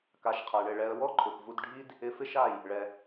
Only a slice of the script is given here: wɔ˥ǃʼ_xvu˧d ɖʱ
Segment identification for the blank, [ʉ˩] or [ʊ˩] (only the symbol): ʊ˩